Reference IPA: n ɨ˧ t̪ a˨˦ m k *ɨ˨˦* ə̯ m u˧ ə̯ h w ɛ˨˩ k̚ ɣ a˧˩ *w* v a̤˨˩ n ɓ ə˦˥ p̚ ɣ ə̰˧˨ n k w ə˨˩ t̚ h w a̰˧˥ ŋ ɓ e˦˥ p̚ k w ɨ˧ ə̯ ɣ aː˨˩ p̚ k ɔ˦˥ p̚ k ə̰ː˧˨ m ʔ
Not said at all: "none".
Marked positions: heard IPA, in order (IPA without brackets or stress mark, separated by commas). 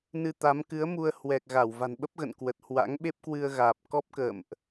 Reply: ɨ˨˦, w